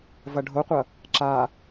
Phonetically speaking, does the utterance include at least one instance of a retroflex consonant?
yes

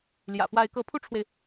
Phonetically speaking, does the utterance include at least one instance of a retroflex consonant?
yes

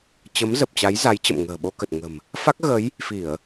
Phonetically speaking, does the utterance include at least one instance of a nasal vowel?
no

